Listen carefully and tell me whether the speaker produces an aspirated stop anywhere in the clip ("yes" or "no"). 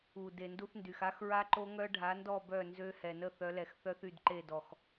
no